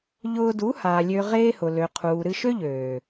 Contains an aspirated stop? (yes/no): yes